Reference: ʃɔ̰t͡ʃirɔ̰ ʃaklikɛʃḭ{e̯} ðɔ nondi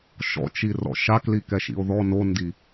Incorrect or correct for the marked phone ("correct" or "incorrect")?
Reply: incorrect